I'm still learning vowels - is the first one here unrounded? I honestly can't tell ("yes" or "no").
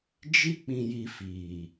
yes